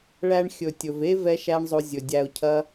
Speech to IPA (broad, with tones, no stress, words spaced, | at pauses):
ɭæ˧ɳxʲɵ˨ tʲɵ˨ve˦ vɛ˦ʃæ˦ɳ zˤo˧ zʲɵ˨ dʲæ˧ʊ̯ cʰɐ˦